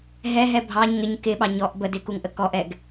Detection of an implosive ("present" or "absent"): present